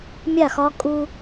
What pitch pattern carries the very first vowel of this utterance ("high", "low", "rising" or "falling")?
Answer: falling